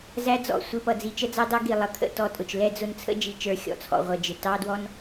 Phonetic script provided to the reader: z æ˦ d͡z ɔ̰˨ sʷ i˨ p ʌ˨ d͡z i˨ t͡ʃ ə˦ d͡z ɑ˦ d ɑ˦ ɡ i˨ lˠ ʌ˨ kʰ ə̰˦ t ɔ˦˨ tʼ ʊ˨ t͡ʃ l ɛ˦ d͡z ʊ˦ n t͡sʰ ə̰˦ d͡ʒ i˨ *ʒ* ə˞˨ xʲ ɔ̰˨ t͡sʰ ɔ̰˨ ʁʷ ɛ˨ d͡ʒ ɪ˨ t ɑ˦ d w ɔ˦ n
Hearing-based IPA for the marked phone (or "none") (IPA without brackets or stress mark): t͡ʃ